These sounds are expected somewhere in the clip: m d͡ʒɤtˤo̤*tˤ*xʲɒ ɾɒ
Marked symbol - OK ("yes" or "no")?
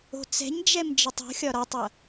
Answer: no